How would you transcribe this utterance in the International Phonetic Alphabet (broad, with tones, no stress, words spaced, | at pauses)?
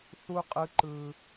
θu˦qʼɯ˦ǃɯ˦